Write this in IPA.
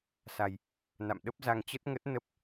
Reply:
sa˧j | na̰˧˨mɗə˦˥p̚za˧ŋ t͡ɕə˦˥t̚ŋə˦˥t̚ nə˦˥p̚

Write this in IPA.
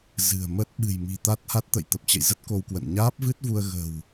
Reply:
zɨ̤˨˩ə̯mə˦˥t̚ ɓɨ̤˨˩jmi̤˨˩t̪a˦˥t̚ha˦˥t̚ t̪ə̰˧˨jt̪ə˨˩p̚t͡ɕə̰˧˨jzə˦˥t̚ ko˧wkwə̰˧˨n ɲaː˦˥p̚vɨ˦˥t̚vu˧ə̯ ɣə̤˨˩w

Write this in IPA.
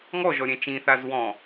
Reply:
ŋɔʒɔ ɾʲɛ̃t͡ʃĩθaz wɔ̃

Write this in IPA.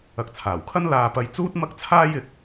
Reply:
ɐ˨k̚t͡sʰaː˨˩wkʰɐ˥n laː˨pɐ˨j t͡suː˥t̚ mɐ˥k̚t͡sʰaː˥jɪ˨˥k̚

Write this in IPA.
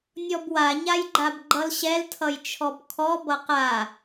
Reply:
nʲɔbwaɲajɡ͡ǃab ɡ͡ǃʌlɕɛltʰʌjt͡ʃʰɔb kʰɔ bʌqa

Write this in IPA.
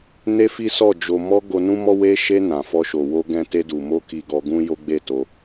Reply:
ne˦fi˦ sɔ˦˨ d͡ʒo˨mɔ˧ ɡo˧nũ˦mɔ˦ we˧ʃe˧ nã˨fɔ˧ ʃo˨ wo˧ɡɛ̃˧ te˧du˨mo˧ ki˧ɡɔ˧ɡũ˦ jo˦ɡ͡be˦˨to˧

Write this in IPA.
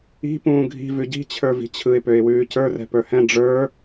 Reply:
i̤ pũːɡʱi̤ vʉɟi̤t͡ɕʰə˞vi̤ t͡ɕʰɯɪ̯pøɪ̯wʉː cə˞rɛ̤ pə˞hɛ̃ ɖ͡ʐə˞

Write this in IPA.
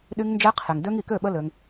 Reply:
ɗy˧ŋnd͡ʒɛ˧qʰe˨ŋdø˧ŋ i˨kø˦˨ ɓə˦lø˧ŋ

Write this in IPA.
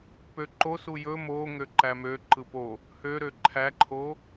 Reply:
pøǃosu jɵ moŋø ǃæmøǃɯ po | høɾø ǃʰæǃʰo

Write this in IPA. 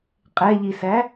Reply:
qʼɛʎisæ

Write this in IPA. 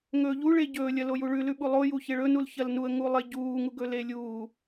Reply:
ŋɵːʎu ɭeɟɵː lʲɐlojuɭʉ lʉɓulˠo juçeɭɵ nulçɐlnuə̯ ŋulˠeɟuː ŋuɡɵlelʲuː

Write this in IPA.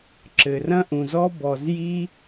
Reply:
ǁɘ˨rɐ̃˦ʔũ˨zɔ˦ bɔ˨zji˦

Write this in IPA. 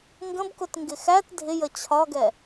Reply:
ŋɡə̃bkʊt ŋɡɪxæt dʱɪjə t͡ɕʰɒɡɛ

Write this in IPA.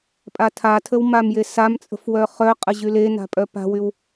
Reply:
pʼatʰatʰəw mamjesamt͡sʼə̤f wœχœqʼə ʑylena̤ pʼœpa̤wyw

